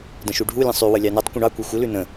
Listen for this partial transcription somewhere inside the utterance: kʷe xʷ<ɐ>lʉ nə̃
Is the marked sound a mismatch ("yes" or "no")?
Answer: yes